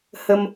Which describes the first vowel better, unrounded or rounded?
unrounded